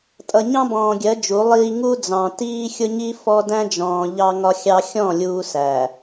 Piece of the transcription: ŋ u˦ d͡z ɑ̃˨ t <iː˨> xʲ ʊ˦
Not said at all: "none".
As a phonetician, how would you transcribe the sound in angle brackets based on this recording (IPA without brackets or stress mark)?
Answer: iː˦